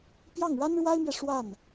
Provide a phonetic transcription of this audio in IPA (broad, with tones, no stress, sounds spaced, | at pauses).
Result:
p j ɑ˥˩ ŋ ɻ a˥ n ɻ w a˥ ɪ̯ m j ɛ˨ ʂ w a˥˩ n